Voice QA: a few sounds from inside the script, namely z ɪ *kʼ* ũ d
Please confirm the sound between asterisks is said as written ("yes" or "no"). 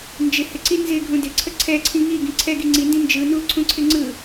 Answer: no